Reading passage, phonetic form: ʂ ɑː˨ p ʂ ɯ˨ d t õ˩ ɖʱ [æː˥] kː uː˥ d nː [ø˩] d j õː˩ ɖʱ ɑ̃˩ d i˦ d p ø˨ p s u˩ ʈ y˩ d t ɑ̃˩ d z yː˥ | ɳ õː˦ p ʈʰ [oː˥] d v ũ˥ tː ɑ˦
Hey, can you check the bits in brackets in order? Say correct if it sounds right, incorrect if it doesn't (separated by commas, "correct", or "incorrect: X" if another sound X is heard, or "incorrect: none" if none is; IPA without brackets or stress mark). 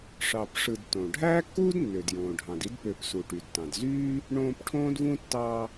correct, correct, incorrect: õː˥